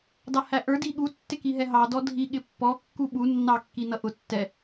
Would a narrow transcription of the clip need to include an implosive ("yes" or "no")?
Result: yes